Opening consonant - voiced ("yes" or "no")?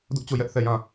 yes